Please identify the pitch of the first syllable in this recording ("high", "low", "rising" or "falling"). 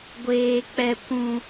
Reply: high